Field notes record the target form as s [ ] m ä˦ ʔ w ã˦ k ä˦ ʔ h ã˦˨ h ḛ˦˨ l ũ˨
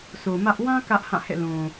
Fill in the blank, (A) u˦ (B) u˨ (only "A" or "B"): B